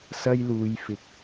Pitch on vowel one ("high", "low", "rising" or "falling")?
high